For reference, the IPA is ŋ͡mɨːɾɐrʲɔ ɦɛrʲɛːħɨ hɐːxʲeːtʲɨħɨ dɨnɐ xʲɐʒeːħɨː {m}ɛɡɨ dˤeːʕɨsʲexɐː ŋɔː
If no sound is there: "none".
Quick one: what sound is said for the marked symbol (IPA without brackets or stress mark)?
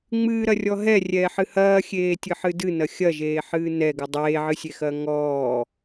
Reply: n